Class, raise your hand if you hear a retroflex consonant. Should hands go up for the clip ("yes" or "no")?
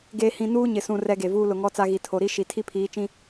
no